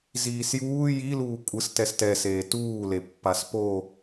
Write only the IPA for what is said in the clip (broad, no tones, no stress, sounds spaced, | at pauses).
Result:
z iː s j uː j i l uː kʷʼ ɯ s t ɛ s t ɛ s eː t uː l e pː a s p o